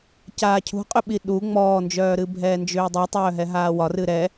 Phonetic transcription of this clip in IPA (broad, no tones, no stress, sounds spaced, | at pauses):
c aː cʰ ṳ qʼ ʏ ɓ i ɗ u ŋ͡m ɔː n d͡ʒ œː ɾ ɨ bʱ ɛː n d͡ʒ ʏː dˤ i tˤ œː ɦ ɛ ɦ aː w ɒ r ɨ ɾ ɛ